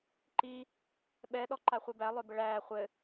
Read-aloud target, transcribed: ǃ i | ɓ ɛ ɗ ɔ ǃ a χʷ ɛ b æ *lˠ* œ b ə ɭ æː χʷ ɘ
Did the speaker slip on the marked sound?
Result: no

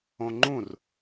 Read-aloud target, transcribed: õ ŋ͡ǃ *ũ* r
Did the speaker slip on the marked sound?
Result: no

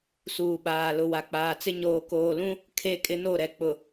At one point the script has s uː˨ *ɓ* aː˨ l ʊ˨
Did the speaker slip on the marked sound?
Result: no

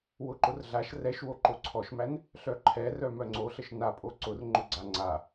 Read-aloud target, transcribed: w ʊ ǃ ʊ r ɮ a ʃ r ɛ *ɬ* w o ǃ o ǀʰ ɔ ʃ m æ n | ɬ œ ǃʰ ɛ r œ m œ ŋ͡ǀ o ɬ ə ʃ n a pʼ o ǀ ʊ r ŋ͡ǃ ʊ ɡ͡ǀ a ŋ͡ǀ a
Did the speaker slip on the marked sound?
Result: yes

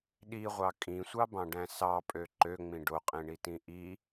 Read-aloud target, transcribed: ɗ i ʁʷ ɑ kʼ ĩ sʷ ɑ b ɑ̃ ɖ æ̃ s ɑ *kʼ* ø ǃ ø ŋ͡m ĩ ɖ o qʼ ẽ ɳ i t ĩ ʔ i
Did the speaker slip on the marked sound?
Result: yes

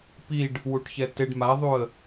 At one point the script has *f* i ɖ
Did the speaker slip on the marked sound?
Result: yes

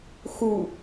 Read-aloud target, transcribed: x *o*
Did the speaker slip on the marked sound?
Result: yes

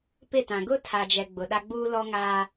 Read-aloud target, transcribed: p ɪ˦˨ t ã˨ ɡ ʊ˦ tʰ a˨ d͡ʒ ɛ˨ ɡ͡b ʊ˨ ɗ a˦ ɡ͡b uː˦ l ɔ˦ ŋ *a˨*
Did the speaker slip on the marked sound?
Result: yes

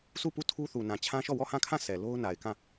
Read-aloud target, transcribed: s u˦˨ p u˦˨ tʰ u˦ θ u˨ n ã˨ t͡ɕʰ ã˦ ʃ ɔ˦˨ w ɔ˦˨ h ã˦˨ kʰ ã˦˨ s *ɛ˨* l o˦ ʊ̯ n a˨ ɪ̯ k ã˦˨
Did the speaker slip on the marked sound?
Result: no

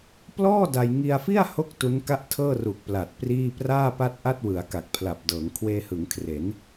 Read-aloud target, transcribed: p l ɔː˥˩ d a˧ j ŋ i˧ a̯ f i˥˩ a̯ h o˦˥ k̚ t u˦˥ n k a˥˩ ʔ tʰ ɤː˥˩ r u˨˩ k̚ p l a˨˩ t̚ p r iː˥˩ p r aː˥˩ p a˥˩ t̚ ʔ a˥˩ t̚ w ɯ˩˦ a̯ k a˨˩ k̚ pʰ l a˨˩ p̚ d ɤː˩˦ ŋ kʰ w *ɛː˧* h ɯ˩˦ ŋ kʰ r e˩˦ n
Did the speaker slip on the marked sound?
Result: yes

